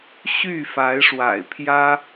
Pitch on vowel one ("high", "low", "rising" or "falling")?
falling